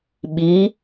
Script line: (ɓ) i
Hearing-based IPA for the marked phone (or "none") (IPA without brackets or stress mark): ɓ